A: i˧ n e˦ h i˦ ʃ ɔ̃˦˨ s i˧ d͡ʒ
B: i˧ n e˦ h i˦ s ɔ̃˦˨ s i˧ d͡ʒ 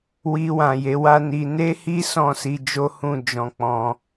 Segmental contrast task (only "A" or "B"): B